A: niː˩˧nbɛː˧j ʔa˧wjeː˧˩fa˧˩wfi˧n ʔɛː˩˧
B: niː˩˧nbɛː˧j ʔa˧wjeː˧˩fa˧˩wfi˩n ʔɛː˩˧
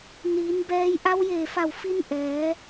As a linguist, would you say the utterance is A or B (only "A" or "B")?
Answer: A